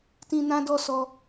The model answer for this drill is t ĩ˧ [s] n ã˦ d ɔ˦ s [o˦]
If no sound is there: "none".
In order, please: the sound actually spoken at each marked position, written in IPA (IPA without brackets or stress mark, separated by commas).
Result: none, ɔ˦